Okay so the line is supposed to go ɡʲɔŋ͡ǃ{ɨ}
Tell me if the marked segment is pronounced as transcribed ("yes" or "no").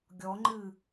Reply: yes